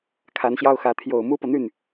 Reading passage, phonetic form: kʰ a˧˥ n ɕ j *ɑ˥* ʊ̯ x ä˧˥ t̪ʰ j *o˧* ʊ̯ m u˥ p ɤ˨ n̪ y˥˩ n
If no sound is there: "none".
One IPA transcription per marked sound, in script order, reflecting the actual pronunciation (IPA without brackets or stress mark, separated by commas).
ɑ˥, o˨˩